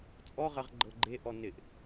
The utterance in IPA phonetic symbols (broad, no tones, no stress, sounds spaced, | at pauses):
t͡sʼ ɔ ʁ ɜ ʁ ɡ͡ǃ ɤ ɡ͡ǃ e ʔ ɔ n ɪ ʔ